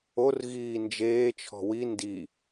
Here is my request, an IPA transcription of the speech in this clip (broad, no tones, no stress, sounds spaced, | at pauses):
o r ɣ iː n d͡ʒ eː t͡ʃʰ ɔ̤ w i n d i